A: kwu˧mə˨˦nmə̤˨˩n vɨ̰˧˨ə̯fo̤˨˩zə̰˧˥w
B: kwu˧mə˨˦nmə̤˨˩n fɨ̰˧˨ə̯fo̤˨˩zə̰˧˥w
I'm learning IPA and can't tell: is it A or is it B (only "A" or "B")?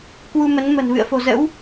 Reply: A